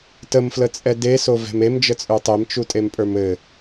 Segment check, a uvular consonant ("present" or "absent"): absent